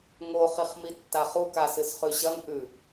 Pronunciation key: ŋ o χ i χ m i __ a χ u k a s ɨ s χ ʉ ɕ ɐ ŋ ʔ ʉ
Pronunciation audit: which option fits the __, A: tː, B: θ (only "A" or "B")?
A